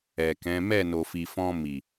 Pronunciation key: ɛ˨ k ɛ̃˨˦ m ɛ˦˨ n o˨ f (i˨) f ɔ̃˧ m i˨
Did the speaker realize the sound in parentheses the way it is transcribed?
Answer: yes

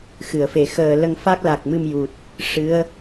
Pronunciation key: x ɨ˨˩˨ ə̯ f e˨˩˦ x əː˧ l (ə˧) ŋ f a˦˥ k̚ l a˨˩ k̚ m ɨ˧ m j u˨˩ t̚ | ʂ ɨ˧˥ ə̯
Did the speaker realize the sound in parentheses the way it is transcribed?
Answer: yes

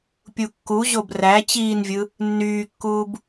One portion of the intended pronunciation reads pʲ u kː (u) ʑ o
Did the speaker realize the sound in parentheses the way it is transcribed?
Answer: yes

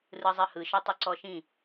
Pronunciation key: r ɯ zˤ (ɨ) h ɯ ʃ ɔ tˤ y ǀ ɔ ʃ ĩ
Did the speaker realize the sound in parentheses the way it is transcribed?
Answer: yes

